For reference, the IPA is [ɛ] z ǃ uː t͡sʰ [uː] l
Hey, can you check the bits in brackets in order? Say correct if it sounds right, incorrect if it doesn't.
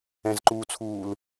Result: incorrect: ɛ̃, correct

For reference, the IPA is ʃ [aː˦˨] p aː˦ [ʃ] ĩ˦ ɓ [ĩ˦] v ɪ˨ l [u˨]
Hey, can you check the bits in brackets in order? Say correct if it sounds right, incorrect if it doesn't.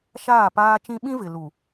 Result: correct, incorrect: t͡ʃ, correct, correct

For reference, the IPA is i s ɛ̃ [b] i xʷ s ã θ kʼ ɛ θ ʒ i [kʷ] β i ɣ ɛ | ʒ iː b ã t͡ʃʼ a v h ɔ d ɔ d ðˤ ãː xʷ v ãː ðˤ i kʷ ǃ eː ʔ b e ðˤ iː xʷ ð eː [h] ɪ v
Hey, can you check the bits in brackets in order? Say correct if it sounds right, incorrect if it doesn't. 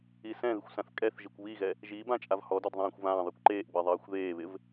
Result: incorrect: ð, correct, incorrect: β

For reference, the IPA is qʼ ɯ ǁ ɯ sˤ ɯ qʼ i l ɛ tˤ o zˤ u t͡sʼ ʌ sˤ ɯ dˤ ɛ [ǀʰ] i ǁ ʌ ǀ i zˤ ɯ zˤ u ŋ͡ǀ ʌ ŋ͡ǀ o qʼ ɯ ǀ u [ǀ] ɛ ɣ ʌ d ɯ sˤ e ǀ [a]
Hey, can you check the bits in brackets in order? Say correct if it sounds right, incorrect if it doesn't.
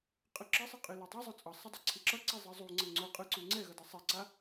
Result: correct, incorrect: ŋ͡ǀ, correct

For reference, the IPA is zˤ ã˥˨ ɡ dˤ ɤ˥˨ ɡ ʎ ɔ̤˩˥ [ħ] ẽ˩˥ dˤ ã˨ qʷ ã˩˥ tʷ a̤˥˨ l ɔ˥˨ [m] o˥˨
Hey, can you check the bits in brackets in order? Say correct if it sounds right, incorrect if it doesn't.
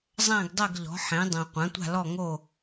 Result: correct, incorrect: ŋ

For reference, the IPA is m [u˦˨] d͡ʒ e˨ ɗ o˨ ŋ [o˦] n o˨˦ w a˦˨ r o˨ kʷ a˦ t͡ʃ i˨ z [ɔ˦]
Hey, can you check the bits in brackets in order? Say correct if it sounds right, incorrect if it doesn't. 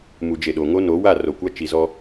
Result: incorrect: u˨, correct, correct

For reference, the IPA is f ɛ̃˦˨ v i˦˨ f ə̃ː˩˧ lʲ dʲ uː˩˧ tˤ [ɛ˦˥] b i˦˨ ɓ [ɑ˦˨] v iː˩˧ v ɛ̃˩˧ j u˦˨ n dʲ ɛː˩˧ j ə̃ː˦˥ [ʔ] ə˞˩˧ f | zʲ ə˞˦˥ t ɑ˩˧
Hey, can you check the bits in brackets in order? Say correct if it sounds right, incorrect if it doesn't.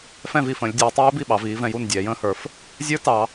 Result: incorrect: ɛː˦˥, incorrect: ɑ˩˧, incorrect: h

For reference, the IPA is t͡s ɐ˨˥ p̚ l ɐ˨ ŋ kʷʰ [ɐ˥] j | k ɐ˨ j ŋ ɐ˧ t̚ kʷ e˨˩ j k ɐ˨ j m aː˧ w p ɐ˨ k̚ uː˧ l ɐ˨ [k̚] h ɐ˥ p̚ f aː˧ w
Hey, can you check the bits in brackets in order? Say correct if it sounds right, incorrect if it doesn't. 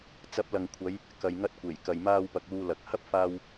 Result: incorrect: ɐ˨˧, correct

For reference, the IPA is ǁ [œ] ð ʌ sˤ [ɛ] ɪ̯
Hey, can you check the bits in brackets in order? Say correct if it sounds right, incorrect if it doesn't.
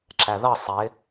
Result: incorrect: æ, correct

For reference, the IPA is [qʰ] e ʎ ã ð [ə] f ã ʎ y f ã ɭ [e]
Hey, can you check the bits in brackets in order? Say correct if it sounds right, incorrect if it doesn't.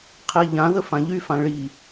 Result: correct, correct, incorrect: i

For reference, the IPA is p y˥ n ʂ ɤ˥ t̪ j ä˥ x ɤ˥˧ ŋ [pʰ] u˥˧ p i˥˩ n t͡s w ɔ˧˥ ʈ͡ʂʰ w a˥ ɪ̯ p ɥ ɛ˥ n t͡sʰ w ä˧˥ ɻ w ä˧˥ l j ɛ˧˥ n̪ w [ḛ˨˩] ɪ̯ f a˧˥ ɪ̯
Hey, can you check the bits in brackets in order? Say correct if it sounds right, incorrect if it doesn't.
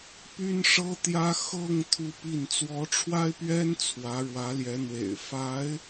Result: incorrect: t̪ʰ, correct

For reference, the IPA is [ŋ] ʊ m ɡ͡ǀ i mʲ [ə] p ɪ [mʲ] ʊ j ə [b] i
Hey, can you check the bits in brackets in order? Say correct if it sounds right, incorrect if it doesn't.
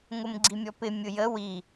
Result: correct, incorrect: ɔ, correct, incorrect: w

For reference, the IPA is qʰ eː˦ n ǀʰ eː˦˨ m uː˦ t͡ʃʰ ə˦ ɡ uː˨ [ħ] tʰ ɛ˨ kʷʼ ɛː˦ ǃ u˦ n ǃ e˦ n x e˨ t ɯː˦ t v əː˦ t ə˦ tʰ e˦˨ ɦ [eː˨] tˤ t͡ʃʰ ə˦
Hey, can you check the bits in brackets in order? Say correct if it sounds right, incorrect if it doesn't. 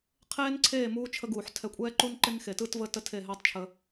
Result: correct, incorrect: eː˦

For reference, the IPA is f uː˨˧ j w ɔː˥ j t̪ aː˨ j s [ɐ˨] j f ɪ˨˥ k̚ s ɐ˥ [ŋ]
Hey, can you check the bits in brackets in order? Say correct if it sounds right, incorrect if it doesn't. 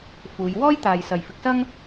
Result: correct, correct

